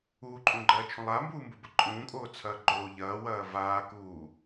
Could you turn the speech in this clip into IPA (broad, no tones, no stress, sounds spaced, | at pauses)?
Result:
uː ǃʼ ũː ɡ͡ǃ ɐː t͡ʃʰ ũ lˠ a m b uː m b u b ə ǃʼ ũː kʼ oː t͡sʰ ɐː ɡ͡ǃ o ʎ ɐː w ɐː v aː k uː